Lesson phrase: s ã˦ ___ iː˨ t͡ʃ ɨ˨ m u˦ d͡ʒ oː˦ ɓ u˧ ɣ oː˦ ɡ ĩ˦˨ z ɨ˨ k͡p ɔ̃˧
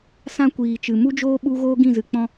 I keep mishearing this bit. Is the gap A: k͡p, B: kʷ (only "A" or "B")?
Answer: B